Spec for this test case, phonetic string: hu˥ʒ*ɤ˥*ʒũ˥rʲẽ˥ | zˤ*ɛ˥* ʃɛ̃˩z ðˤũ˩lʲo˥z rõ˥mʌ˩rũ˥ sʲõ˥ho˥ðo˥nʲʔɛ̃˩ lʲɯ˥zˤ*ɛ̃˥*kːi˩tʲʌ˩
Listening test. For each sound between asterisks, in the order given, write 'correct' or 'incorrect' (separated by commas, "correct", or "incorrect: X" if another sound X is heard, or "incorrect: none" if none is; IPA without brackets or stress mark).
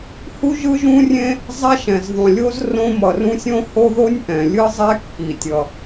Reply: incorrect: ɯ˥, correct, incorrect: ɛ˥